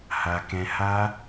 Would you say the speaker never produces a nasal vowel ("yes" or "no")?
no